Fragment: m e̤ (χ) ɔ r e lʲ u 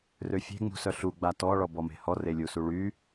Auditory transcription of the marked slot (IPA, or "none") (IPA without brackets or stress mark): h